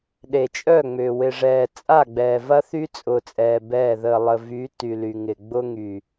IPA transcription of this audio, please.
ɗe˨t͡ʃʼœ˦˨ŋ͡mʏː˨ wɪ˨ʐɛː˨ t͡sʼa˦˨ɡ͡bɛː˨ vɐ˦θy˦t͡sʼʊː˨t͡sʼɛː˨ bɛː˦˨ ðəː˨ lˠə˨ vy˨˦ ty˨ly˨ŋɪ˨ ɡ͡bʊ˦ŋy˨

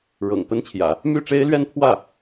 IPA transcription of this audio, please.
ɻɤ̰˨˩ŋ t̪ə˥nt͡ɕʰjä̰˨˩˦ | my˥˩ʈ͡ʂe˥ɪ̯lɥɛ˥˧npʰwä˥˩

